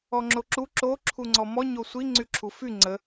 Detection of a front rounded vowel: present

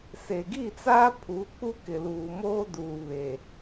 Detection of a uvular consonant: absent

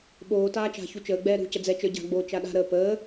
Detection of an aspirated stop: absent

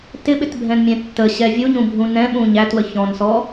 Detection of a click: absent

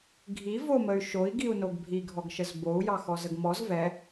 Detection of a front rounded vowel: present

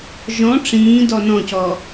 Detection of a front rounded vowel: absent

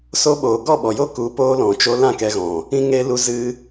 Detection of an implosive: present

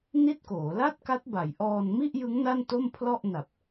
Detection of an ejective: absent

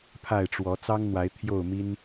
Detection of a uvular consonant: absent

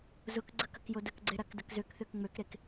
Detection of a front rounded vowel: present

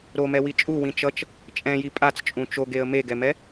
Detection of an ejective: present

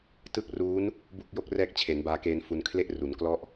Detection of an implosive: absent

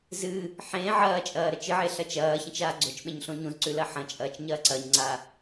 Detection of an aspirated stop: absent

